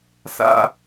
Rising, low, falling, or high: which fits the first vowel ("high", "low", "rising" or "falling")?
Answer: high